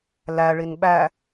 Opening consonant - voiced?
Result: yes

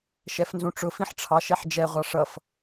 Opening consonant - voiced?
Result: no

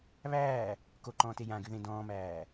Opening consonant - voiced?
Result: yes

